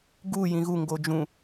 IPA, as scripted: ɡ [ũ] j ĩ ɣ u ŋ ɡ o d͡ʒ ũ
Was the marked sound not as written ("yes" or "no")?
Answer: yes